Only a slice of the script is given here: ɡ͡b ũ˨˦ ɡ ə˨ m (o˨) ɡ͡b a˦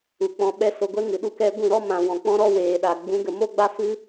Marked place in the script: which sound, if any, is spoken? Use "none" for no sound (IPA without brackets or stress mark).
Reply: o˦